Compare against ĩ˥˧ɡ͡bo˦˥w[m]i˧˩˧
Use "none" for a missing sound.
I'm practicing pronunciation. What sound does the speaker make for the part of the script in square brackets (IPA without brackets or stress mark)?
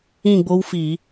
f